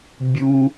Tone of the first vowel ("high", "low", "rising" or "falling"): low